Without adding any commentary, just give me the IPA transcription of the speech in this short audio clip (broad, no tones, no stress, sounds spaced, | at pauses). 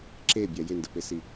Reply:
ǁ e bʲ a j ɪ n d ə p e s i